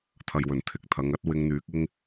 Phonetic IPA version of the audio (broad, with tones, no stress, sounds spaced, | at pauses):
t̪ʰ ɐ˨ j w ɵ˨˩ n t̪ʰ ɪ˨˥ k̚ t̪ʰ ɐ˨˧ ŋ ɐ˥ t̚ w ɪ˧ ŋ n̪ yː˨˥ k̚ ɪ˧ ŋ